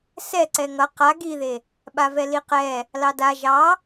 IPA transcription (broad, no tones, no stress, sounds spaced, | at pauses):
s ɛ ǀ ɛ ŋ ʌ q a ɡ i ð e | ɓ a v ɛ l i q ɛ | l ɑ d a ʒ ɑ